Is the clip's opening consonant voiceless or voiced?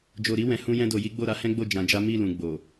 voiced